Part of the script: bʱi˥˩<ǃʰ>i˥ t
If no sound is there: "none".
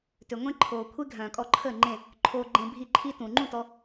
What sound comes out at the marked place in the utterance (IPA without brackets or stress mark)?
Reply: ǃʰ